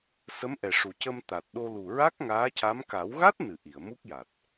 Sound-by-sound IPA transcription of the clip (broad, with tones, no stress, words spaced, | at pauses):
sə˧˥mʔɛ˨˩ʂu˨˩ cə˧mt̪a˨˩t̚ɗo˧ lu˨˩ɹa˦˥k̚ ŋaː˧˥ca˧˥m ka˨˩˦wɣa˦˥t̚nɨ˨˩˨ ʔi˨˩˨ə̯mu˦˥k̚ja˨˩t̚